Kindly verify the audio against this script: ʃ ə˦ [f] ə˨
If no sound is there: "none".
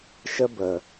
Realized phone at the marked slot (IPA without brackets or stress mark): b